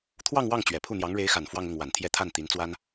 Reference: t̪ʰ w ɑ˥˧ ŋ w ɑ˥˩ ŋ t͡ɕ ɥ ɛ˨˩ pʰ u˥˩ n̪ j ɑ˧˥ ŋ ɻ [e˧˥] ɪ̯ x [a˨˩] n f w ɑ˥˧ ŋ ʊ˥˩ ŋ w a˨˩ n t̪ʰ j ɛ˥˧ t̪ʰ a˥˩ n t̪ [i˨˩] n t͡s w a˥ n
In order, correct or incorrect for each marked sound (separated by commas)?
correct, correct, incorrect